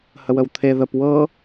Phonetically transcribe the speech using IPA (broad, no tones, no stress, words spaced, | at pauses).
həwəwt̪ʰe ðəp wɤ